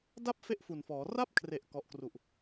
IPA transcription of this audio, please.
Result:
d a˥˩ p̚ f e˥˩ ʔ f u˨˩ n f ɔː˩˦ r a˥˩ p̚ kʰ r e˨˩ ʔ k ɔ˨˩ ʔ k r u˨˩ ʔ

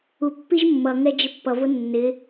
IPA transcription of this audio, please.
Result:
u pː i ʒ mː ʌ ŋ ɛ d͡ʒ ɪ pː ʌ v ʊ nː ɪ

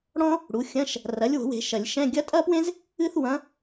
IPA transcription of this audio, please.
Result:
ɽ ɔ̃˥ | ɽ u˩˥ xʲ ɐ̃˧˥˧ ʃ | r ɐ˩˥ lʲ w o̤˨˩˦ w e̤˨˩˦ ʃ ɐ˨˩˦ lʲ ʃ ɛ̃˧˥˧ ɡʲ ɐ˧˥ tʼ ɐ˥ p w ẽ˥ z | ɨ˥ θ w ɐ̃˧˥

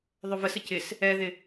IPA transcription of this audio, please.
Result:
ðˤ ɵ v ə s ə c ɪ s | ɛ ð ɪ

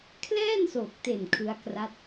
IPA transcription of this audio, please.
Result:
kʰ l ɛː˥˩ n s oː˨˩ k̚ t e˨˩ n kʰ ɯ˦˥ a̯ k r a˦˥ t̚

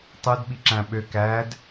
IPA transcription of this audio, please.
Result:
tˤ ɯ d ɓ i ǁ æ̃ ɓ ø k æ d

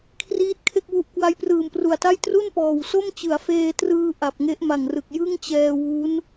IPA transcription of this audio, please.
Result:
kʰ r iː˦˥ t̚ kʰ e˥˩ k̚ w u˦˥ ʔ k w a˦˥ j p r ɯː˨˩ m p r u˨˩ a̯ t a˥˩ j t r u˥˩ n p ɔː˨˩ w s o˥˩ m t͡ɕ ɯ˩˦ a̯ f eː˧ t r ɯː˧ ʔ a˨˩ p̚ ŋ e˦˥ ʔ m a˨˩ ŋ r ɯ˨˩ k̚ j ɯ˥˩ ŋ t͡ɕ ɛː˧ w u˦˥ n

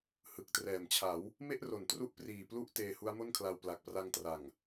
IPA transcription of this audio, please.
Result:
h ɯ˨˩ k̚ t r ɛː˨˩ m t͡ɕʰ a˩˦ w | m e˥˩ ʔ r o˨˩ n t r u˦˥ ʔ p r iː˨˩ p l u˦˥ ʔ t eː˧ h u˦˥ a̯ m o˥˩ n kʰ l a˧ w p l a˨˩ k̚ p r a˧ ŋ t r a˨˩ ŋ

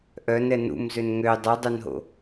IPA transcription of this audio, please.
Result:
ʔ œ n ɛ n ṵ m z ø n ŋ ø dˤ œ dˤ œ n ɦ o̰

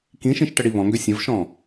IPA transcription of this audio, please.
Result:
k ĩ ʃ ĩ ʃ ʈ ə ɽ i β ɔ̃ ŋ ɡ ø sʲ ə̃ v ʃ ɔ̃

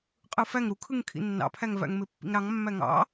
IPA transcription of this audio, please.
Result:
qʼ ɯ f æ ŋ ɾ u kʰ ɯ ŋ kʰ ḭ nː ɑ̰ pʰ æ ŋ v æ̰ ŋ m e pː ḭ ŋ ɾ ɑ ŋ mː æ ŋ ɑ̰

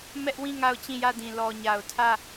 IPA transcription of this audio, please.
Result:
m ɛ˦ ʔ w ĩ˦˨ ŋ a˦˨ ʊ̯ t͡ɕ ĩ˦˨ j ä˦˨ d ĩ˨ l ɔ˨ ɲ a˨ ʊ̯ tʰ ä˦˨

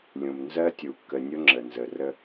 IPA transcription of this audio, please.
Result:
lʲ ũ˨ m n z ɜ˦ tʲ u˨ kː ə˨ nʲ ʊ˦ ŋ͡ǁ ə˨ n z ə˨ r ə˦

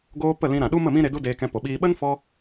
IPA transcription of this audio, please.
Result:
ɡ oː˧ p ə˦˨ l ĩ˧ ɾ ã˨ ɗ u˦ m ə˦˨ m ĩ˦ ɾ e˧ d u˦ d eː˧ k ɛ̃˧ p o˨ ɓ iː˦ ɓ ə˦ n f ɔ˧

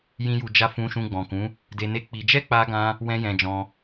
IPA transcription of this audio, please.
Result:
j ĩ˧ j u˨ d͡ʒ a˧ f ũ˧ ʃ ũ˧ ɡ͡b ɔ̃˨ k ũ˨˦ | d e˧ n e˦ k͡p i˧ d͡ʒ ɛ˦ k͡p a˧ ɡ ã˧ | w ɛ̃˦ j ɛ̃˧ d͡ʒ ɔ̃˧

